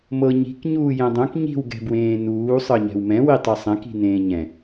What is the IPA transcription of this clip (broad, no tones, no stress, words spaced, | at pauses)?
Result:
mɤɲi̤k ɲuːjɛ̃dˤõk ɲi̤w ɡɛ̤bwẽːnuː sˤɤɲɛ̤wmɛ̃ witˤesˤɛ̃k i̤nẽːɲɛ̃